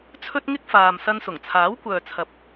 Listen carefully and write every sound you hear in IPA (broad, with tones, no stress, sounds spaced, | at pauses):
t͡sʰ ɵ˥ t̚ ŋ ɪ˥ k̚ f aː˨ m s ɐ˧ n s ʊ˨˩ ŋ t͡sʰ aː˨˥ w kʷ œː˨ t͡sʰ ɐ˨ p̚